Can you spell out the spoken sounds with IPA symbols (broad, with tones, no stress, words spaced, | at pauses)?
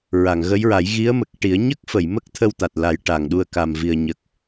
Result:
ɹa˨˩˨ŋɣə˧˥jɹa˨˩˦j ɣi˧˥ə̯mə˨˩k̚ʈi˨˩˦ə̯ ɲə˦˥k̚fə˨˩˨j mə˦˥k̚ t̪ʰə˧wt̪a˨˩t̚la˨˩˦j ʈa˨˩ŋɗu˧ə̯ ka˨˩m vi˨˩ə̯ɲə˨˩k̚